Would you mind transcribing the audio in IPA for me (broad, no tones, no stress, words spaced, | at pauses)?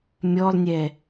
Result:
mʲɔlˠnʲɛ